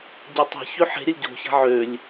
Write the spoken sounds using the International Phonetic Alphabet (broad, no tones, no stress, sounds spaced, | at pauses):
ɟ ø tˤ e̤ ç ø ħ e̤ ɾʲ ə lʲ ɟ o̤ ç a̤ ʕ ø lʲ